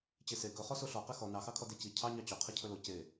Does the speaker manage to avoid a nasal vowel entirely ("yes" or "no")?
yes